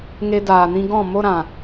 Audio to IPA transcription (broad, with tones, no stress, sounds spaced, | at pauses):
ŋ e˧ d aː˨ n ĩ˧ ɡ ɔ̃˦˨ m o˧ ɾ ã˨